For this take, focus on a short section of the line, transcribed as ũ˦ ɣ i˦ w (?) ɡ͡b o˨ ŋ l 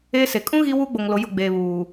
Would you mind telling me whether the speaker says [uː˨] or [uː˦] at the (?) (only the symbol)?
uː˦